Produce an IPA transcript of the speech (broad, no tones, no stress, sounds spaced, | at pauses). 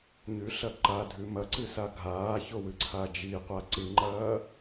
ɲ ʉ ɬ ɐ ǃ a dʱ ʉ m ɐ ǀ ɨ s a ɡʱ aː ç o w ɨ ǀʰ a d͡ʒ i qʷ a ǀ ɨ ŋ͡ǃ ɐː